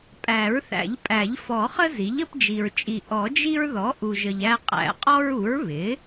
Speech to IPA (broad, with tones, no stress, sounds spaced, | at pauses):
pʼ æ˨˩˦ ɹ θ æ̰˨˩˦ ʎ pʼ æ˨˩˦ ʎ f ɔ˨˩˦ χ ə˦ z i˩˥ ʎ ə˦ p d͡ʒ i˨ ɹ t͡ʃʼ i˨ ʔ ɔ˨˩˦ d͡ʒ i˦ ɹ ð ɔ˩˥ ʔ u˨ ʒ ə˨ ʎ æ˦ qʼ æ̰˨˩˦ qʼ ɔ˦ ɹ u˩˥ ɹ β ɪ˩˥